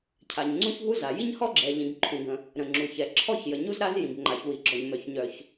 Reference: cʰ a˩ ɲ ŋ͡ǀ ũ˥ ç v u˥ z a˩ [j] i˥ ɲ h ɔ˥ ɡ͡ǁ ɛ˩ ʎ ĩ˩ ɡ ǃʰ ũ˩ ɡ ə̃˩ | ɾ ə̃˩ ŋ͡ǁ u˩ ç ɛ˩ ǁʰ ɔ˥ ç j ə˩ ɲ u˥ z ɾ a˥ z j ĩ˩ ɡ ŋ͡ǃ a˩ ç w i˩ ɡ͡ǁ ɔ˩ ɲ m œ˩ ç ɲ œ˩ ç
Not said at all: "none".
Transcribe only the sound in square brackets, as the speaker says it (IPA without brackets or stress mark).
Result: j